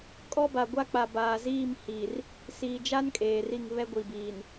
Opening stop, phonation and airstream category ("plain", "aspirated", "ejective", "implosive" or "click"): ejective